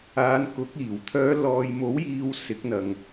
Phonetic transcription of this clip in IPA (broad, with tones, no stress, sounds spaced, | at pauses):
aː˨˧ n k ʊ˨˥ k̚ iː˨˩ w t̪ʰ œː˨˧ l ɔː˨ j m o˨˥ w j iː˨ w s ɪ˨˥ k̚ n̪ ɐ˨ ŋ